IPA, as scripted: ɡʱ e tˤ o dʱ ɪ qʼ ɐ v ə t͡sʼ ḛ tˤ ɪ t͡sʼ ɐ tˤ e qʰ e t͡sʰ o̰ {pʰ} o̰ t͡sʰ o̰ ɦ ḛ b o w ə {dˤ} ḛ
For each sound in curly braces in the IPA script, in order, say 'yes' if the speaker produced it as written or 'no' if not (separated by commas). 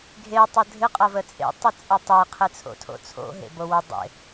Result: no, yes